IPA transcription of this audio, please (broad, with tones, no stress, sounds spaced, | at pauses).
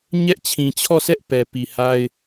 ɲ ɛ˦ ʔ t͡ɕʰ ĩ˨ t͡ɕʰ ɔ˦˨ sʰ ɛ˦ ʔ p ɛ˨ p i˨ h a˦ ɪ̯